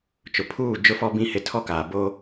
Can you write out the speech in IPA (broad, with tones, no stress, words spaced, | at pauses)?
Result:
t͡ʃʊ˨pʰuː˦˨ d͡ʒʊ˦fɔ˦bĩ˦ hɪ˨ tʰɔ˦kaː˨ bo˦